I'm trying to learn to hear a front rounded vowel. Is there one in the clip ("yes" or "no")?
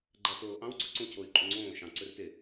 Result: yes